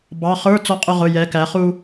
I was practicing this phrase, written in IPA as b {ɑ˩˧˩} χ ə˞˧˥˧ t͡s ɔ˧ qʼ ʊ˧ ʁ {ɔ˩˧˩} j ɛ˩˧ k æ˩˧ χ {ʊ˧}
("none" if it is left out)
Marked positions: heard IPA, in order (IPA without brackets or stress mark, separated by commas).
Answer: ɑ˩˧˩, ʊ˩˧˩, u˧